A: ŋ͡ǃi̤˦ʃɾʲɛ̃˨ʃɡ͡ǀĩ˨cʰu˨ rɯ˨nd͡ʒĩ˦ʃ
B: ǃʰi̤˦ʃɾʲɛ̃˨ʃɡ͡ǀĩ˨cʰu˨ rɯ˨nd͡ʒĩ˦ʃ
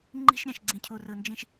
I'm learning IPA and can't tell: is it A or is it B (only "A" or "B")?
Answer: A